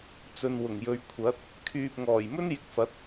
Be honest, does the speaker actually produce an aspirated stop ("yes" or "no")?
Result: yes